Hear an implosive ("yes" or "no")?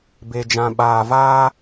yes